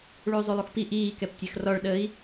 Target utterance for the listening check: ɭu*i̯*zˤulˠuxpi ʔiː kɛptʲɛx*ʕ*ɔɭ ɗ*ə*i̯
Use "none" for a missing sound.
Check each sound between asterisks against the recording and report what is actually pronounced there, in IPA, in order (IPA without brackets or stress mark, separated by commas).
y̯, r, ə